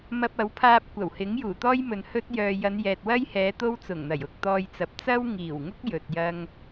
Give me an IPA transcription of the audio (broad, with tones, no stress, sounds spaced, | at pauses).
m ɐ˧ p̚ ɐ˨˥ w pʰ aː˧ p̚ kʷ ɐ˨˩ w h ɪ˨˥ ŋ j uː˨˩ t̪ ɔː˥ j m ɵ˨ n h ɵ˥ t̚ j œː˨ j ɐ˨˧ n j ɛː˨ t̚ w ɐ˥ j h ɛː˨˧ t̪ o˥ w t͡s ʊ˨˩ ŋ n̪ ɐ˨˩ j ʊ˨ k̚ t̪ ɔː˧ j t͡s ɐ˨˥ p̚ t͡s ɐ˥ w ŋ iː˨˩ w ŋ ʊ˥ k̚ j ɵ˨ t̚ j ɐ˥ ŋ